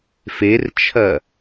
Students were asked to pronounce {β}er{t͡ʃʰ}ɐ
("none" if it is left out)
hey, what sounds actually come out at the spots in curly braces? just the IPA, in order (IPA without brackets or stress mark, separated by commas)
f, t͡ʃʰ